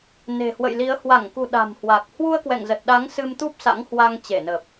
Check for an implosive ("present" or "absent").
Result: present